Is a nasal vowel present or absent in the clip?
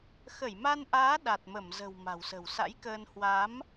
absent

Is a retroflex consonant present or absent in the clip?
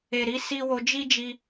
absent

